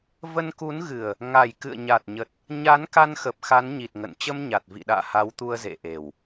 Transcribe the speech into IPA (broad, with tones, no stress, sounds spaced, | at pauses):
v ə˧ n k u˨˦ n ɣ ɨ˨˩ ə̯ | ŋ a˨˩ j k ɨ̰˧˨ ə̯ ɲ a˨˩ t̚ ɲ ə˨˩ t̚ | ɲ a˨˦ n k a˧ n x ə˨˩ p̚ x a˨˦ n ɲ i˨˩ t̚ ŋ ə̰˧˨ n t͡ɕ ə˧ m ɲ a˨˩ t̚ v ḭ˧˨ ɗ a̰ː˧˨ h a˨˦ w t̪ u˧ ə̯ z ḛ˧˨ ʔ e˨˩ w